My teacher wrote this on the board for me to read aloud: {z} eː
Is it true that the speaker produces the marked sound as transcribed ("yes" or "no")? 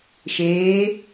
no